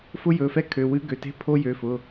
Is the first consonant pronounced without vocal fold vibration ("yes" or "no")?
yes